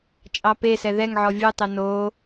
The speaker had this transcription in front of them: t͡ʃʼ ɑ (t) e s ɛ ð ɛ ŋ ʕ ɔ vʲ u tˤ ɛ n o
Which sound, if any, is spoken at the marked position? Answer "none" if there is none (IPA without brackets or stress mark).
p